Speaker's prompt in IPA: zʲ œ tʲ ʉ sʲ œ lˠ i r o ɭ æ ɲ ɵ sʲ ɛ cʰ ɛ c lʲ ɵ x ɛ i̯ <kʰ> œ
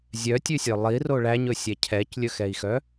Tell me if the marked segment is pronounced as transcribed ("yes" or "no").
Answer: no